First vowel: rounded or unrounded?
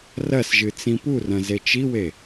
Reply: unrounded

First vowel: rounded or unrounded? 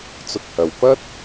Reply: rounded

